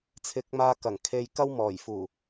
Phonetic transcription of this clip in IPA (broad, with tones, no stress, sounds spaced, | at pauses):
t͡sʰ ɪ˨˥ k̚ m aː˧ k ɐ˨˩ ŋ kʰ e˧ j k ɐ˧ w m ɔː˨˩ j f uː˨˩